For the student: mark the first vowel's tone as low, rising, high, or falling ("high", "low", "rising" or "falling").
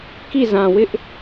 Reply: falling